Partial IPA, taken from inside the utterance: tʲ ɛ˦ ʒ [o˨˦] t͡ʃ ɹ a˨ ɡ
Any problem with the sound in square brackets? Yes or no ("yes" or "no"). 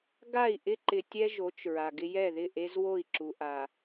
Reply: no